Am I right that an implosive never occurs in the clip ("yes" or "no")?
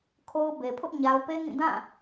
yes